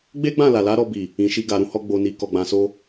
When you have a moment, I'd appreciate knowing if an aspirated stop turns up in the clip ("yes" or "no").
no